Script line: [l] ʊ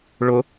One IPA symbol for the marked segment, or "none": ɭ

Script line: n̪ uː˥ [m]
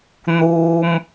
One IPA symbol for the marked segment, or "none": m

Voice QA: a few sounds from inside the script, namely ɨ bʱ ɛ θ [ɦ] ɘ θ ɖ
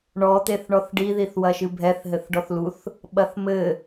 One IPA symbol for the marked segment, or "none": ɦ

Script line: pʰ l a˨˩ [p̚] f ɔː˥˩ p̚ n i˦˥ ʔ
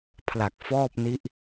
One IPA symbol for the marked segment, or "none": k̚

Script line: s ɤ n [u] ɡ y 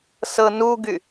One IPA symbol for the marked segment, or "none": u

